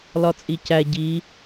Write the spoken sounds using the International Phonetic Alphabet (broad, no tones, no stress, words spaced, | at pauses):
lɒt͡sʼicæ ɟi